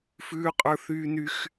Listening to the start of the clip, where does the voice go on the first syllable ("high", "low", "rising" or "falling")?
high